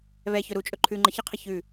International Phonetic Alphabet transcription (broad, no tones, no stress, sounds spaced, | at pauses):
β ɛ ç ɵ ɾ u t͡ʃʼ ɵ ǃʰ ʉ ŋ͡ǃ ə ç ə qʰ ə ç ʉ